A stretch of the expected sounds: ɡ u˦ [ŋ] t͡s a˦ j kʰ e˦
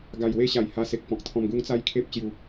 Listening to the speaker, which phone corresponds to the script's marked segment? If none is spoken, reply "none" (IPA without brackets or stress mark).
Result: ŋ